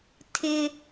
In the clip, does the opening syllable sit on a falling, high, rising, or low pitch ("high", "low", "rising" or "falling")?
high